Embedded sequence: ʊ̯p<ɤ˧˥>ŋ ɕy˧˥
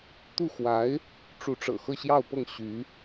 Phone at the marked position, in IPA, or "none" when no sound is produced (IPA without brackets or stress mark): ɤ˥˩